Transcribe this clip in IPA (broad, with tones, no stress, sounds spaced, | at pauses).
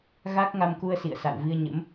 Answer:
ɣ a˦˥ k̚ ŋ a˧ m k u˧ ə̯ s ḭ˧˨ ə̯ s a̰˧˨ w v i˧ ə̯ ɲ ə̰˧˥ m